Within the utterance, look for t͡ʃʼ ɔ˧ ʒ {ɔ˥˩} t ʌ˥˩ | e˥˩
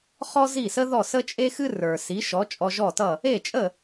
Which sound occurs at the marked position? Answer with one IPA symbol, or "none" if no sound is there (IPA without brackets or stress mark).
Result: ɔ˥˩